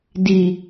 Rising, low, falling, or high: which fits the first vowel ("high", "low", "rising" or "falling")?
low